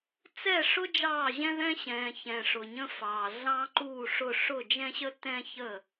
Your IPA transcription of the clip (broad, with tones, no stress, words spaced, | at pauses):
t͡sɛ˥˩ʂʊ˥ d͡ʒɑː˥˩ʑɛ̃˥ðɛ̃˥ ɕɛ̃ː˨ çɛ̃˨ ʂʊ˨ɲə̃˥fɑː˨ ɮɑ̃˥ǃuː˥˩ʂʊ˥˩ ʂʊ˥˩d͡ʒɛ̃˥ɕə˥ tɛ̃˥çə˥˩